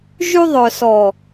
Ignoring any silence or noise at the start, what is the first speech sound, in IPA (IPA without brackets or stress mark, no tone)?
ʒ